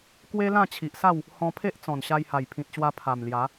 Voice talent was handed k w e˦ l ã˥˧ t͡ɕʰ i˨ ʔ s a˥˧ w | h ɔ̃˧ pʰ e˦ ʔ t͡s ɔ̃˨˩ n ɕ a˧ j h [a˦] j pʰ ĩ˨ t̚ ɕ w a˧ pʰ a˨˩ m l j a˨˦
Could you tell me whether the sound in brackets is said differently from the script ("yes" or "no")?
yes